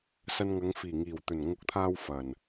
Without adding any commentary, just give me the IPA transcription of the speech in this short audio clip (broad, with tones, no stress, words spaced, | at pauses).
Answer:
sɐ˧nŋɐ˨˧ŋ fiː˨˩ŋiː˨˩wt̪ɵ˨˩n ŋʊ˨˥k̚t̪ʰaː˧w fɐ˨˩n